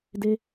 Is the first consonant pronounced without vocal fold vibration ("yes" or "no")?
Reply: no